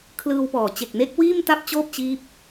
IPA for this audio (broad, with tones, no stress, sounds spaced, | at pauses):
kʰ l ɯː˧ w p ɔː˨˩ t͡ɕ e˨˩ k̚ n e˦˥ k̚ w iː˥˩ m t a˥˩ p̚ t͡ɕ oː˥˩ p̚ t͡ɕ iː˦˥ p̚